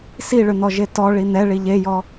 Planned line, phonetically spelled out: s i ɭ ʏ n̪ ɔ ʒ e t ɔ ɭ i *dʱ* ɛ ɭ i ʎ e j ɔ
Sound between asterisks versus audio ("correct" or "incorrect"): incorrect